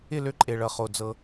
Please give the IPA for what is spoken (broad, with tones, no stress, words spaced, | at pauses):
ɪ˦˨lø˦ ǃʼe˨ɭʌ˨χo˨ d͡zɤ˦